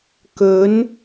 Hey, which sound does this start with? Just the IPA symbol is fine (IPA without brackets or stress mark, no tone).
k